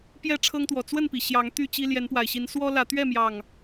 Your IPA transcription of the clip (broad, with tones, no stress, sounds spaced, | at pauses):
p j ɛ˥˨ ʈ͡ʂʰ ɤ˦ ŋ t̪ w ɔ˨˩ t͡s w ə˥˨ n p i˩ ɕ j ɑ˨˦ ŋ t̪ y˥˨ t͡ɕ i˦ l j ɛ˨˦ n p w a˨˩ ɪ̯ ɕ i˨˦ n s w ɔ˦ l ä˨˦ t̪ ɥ ɛ˥˨ m j ɑ˨˩ ŋ